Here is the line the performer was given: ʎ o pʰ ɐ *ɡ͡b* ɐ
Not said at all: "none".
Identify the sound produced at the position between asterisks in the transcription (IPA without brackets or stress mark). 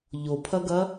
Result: ɡ